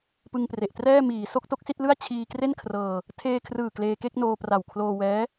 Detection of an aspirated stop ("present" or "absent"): present